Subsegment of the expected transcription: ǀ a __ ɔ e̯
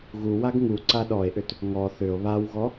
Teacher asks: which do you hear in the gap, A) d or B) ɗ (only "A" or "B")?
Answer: B